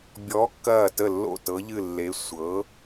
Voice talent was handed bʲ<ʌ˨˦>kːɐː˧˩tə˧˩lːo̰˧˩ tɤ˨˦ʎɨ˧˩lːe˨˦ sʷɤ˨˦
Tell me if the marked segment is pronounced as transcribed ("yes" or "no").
no